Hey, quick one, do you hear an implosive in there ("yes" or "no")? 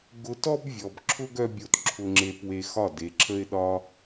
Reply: yes